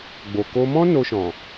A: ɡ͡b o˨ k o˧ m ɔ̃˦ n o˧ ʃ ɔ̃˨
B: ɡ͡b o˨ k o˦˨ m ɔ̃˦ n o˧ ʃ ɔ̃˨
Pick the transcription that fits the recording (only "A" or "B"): A